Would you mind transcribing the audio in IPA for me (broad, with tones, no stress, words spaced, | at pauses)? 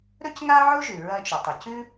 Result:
ɾɵ˥cŋa˥ʕo˥ʒʉ˩ ɹɐ˧t͡ʃo˩tˤɨ˩ cʉ˥